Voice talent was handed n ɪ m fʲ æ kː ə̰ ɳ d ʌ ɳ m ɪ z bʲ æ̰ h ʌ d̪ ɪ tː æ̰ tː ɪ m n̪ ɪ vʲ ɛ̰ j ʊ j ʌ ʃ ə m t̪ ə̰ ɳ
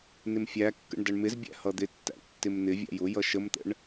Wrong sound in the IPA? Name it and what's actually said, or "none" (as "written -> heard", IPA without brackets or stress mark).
ɛ̰ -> æ̰